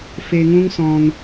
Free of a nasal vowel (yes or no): no